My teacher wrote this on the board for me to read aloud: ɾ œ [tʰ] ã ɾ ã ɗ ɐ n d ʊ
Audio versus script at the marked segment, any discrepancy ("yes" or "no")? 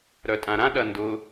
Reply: yes